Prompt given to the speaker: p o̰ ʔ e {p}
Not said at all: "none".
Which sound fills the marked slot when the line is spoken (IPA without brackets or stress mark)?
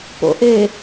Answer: none